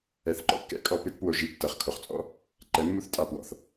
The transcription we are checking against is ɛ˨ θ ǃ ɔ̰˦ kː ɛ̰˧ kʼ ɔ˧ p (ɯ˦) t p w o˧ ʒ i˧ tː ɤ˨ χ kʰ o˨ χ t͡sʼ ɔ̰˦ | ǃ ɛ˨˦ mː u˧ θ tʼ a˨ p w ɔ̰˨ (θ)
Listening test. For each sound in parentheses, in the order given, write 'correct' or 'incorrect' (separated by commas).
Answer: correct, correct